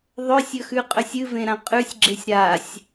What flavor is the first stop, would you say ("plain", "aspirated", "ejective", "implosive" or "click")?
ejective